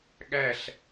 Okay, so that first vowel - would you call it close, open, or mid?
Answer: open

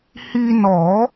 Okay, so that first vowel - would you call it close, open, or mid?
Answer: close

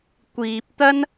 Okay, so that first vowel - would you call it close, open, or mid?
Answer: close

